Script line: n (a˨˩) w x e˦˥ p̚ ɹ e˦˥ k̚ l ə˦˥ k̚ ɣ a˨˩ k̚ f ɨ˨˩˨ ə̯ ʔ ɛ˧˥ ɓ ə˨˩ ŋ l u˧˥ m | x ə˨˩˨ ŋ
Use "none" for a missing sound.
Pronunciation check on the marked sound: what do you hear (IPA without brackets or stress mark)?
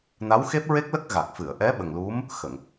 a˧˥